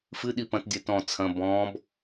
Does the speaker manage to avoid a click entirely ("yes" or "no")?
yes